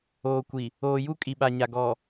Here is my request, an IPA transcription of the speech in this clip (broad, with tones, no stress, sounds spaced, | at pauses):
oː˨ kʷ i˨ | oː˨ j u˦ kʼ i˨ ɓ a˨ ɲ a˨ ɡ ɔ˨